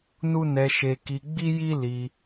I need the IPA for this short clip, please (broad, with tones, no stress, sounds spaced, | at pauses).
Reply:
n u˦ n ɛ˧ ʃ eː˧ k i˧ ɡ͡b i˦ j i˦ l i˧